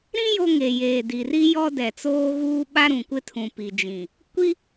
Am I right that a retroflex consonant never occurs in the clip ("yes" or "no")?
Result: yes